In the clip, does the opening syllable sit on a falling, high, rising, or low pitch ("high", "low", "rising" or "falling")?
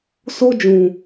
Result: high